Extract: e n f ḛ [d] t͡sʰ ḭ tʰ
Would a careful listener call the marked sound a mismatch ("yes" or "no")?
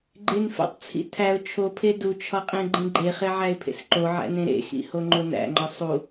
yes